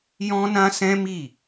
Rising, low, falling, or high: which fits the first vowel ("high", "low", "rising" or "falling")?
high